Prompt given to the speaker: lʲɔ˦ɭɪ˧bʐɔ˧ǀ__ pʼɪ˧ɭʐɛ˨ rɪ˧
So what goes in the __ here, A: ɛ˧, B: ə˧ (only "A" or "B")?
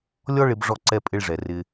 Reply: A